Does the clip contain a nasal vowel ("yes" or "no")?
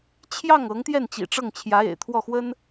no